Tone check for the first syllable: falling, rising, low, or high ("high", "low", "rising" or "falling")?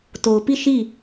low